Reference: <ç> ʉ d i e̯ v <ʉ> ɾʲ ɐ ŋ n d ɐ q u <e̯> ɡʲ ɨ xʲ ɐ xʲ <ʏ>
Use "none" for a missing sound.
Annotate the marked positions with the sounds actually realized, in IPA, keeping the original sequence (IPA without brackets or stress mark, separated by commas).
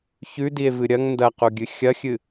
ç, ɨ, none, ɨ